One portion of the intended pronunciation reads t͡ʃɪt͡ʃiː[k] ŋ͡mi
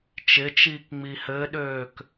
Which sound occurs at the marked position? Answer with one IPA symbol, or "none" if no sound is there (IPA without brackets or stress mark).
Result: k